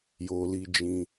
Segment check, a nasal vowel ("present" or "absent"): present